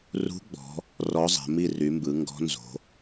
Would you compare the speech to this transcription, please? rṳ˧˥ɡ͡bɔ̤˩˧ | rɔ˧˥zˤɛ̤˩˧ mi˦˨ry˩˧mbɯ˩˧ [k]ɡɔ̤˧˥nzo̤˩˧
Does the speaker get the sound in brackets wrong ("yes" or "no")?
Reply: yes